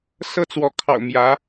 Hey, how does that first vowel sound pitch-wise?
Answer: high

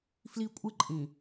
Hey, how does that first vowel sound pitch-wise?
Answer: high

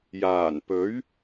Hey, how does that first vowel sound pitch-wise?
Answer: low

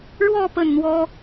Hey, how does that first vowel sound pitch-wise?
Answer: falling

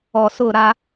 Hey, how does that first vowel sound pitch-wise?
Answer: low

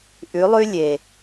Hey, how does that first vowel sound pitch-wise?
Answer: rising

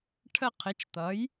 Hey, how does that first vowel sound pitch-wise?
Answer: falling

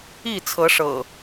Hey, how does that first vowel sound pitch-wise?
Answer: falling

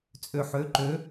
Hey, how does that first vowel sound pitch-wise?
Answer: low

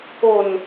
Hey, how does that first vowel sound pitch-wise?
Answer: low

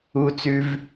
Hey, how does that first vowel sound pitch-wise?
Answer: low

